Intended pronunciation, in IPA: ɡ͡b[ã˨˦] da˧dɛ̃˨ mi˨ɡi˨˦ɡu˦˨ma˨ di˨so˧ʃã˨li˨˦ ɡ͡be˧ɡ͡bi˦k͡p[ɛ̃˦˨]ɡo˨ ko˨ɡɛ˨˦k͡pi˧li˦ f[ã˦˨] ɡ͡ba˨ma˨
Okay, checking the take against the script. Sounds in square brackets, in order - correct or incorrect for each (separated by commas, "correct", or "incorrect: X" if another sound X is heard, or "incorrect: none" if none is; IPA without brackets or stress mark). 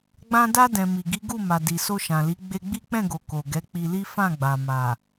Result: incorrect: ã˧, correct, correct